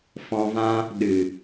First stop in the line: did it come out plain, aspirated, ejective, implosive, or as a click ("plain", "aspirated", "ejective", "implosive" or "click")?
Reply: implosive